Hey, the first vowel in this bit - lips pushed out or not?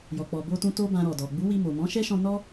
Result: yes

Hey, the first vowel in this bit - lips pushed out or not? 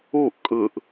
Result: yes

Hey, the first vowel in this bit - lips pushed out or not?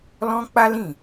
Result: yes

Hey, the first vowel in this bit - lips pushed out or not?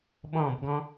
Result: yes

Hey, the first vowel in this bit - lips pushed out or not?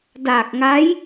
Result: no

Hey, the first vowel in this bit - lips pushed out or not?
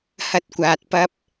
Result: no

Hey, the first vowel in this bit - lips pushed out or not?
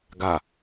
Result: no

